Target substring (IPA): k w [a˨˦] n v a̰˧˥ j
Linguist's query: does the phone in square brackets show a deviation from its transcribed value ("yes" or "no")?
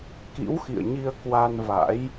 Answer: yes